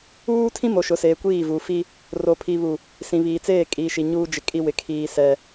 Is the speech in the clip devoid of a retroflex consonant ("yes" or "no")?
yes